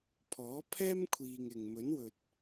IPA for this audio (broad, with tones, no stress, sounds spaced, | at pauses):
pʰ ɔː˨˥ pʰ ɛː˥ m kʷʰ iː˨ ŋ ɪ˨ ŋ m ɵ˨˥ n w ɵ˨ t̚